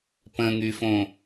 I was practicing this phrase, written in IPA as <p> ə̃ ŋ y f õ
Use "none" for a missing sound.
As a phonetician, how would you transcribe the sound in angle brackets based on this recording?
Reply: p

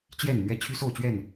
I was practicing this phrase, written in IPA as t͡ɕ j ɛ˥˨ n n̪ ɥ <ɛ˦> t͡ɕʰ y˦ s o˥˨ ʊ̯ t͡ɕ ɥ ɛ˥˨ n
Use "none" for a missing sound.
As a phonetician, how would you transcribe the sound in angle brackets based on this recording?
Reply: ɛ˦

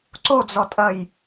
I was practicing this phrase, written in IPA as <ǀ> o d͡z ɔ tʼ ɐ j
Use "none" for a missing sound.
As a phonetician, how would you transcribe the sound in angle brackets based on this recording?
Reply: ǀ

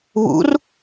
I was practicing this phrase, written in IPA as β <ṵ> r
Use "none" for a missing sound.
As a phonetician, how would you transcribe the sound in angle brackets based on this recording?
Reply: ṵ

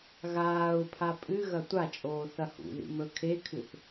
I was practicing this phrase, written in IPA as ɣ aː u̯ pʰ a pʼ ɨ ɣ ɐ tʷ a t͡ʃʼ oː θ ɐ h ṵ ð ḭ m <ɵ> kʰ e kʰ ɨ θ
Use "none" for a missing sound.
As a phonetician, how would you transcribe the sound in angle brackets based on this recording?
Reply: ɵ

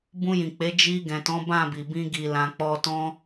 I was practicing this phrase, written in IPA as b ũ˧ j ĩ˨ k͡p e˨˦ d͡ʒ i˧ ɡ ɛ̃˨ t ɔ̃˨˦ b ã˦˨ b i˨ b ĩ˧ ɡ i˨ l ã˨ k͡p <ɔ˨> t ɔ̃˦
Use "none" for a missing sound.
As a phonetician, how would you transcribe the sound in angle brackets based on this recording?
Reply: ɔ˧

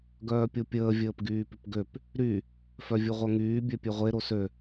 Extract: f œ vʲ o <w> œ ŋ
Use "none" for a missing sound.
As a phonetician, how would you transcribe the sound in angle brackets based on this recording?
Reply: ʁʷ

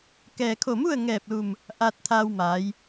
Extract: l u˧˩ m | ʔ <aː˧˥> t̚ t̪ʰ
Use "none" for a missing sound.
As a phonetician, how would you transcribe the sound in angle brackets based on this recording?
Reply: aː˧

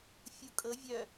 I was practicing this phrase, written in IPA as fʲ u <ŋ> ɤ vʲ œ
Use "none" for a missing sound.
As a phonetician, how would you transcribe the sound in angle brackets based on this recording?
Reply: kʼ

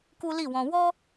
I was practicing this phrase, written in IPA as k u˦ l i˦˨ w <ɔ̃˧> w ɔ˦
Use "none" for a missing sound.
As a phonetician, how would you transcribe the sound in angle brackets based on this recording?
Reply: ɔ̃˧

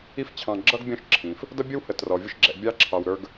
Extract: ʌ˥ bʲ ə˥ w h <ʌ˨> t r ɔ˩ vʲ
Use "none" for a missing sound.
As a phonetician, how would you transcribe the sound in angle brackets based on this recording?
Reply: ə˨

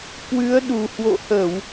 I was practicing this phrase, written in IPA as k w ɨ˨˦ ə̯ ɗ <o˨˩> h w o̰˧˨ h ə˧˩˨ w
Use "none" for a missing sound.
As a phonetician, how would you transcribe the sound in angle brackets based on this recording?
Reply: u˨˩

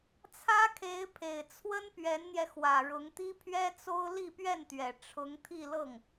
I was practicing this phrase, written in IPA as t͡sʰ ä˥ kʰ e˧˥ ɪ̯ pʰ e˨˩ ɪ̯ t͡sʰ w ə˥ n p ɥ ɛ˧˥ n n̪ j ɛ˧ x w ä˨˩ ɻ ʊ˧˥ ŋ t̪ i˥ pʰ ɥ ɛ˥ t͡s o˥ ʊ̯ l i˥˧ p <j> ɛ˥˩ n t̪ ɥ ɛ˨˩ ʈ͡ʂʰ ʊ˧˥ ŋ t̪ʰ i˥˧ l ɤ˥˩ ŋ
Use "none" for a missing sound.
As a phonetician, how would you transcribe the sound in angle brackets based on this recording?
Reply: ɥ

